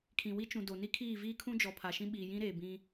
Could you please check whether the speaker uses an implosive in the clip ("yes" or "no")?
yes